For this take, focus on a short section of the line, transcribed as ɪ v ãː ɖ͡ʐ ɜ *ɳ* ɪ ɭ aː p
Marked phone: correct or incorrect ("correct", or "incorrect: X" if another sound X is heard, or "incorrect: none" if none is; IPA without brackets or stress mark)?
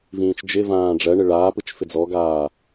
correct